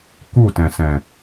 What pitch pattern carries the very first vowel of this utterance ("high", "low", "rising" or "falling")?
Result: falling